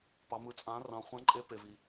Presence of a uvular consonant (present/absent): present